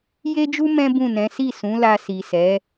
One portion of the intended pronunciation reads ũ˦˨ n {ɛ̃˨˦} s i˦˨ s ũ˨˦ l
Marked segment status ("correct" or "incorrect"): correct